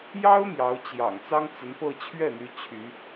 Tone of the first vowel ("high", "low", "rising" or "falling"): high